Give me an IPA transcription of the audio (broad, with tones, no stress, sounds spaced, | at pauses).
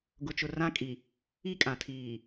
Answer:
ɡ ʊ˨ t͡ʃ ʊ˨ r ã˦ kʼ i˨ | i˦ kʼ ã˨ tʰ iː˨